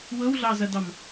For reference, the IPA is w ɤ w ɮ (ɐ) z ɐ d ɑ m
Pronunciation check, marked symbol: incorrect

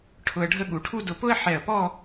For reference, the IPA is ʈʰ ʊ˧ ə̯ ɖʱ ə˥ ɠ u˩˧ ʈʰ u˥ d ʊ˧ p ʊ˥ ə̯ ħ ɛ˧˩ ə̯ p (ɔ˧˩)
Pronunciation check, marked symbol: incorrect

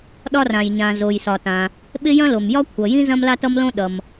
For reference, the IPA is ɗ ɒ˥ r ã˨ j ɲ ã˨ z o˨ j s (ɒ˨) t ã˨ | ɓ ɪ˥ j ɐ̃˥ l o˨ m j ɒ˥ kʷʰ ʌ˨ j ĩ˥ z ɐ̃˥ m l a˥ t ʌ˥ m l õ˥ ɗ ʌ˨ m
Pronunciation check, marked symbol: correct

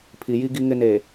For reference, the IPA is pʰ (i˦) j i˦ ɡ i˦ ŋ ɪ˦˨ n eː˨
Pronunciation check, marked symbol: incorrect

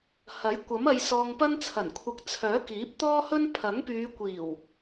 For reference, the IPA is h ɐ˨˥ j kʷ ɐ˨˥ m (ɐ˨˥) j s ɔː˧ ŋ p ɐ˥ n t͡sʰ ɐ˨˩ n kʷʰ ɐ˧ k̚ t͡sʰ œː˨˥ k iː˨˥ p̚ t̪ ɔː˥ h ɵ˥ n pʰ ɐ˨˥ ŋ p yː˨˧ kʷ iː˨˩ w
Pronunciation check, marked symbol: incorrect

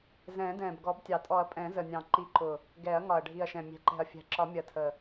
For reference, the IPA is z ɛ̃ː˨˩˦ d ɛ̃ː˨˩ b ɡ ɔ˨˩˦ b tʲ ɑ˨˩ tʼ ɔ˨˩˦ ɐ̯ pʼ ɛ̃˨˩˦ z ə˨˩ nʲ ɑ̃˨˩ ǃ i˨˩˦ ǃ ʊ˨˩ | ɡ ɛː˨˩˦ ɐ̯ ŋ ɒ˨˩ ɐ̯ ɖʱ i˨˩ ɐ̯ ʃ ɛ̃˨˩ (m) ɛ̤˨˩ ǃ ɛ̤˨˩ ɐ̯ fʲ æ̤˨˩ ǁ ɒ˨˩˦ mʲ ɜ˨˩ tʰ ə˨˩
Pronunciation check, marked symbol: incorrect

